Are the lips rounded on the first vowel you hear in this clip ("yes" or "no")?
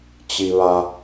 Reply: no